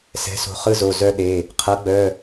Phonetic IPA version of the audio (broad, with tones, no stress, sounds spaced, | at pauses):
s ɛ̤˩˥ s o̤˩˧˩ χ ɯ˦ z o˩˧˩ z œ˦ ɗ e˩˧˩ | qʰ ɤ˩˥ ɡ͡b œ˩˧˩